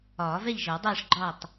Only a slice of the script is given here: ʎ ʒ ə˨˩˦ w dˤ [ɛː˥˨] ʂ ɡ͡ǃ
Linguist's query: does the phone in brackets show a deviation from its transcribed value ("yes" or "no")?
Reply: no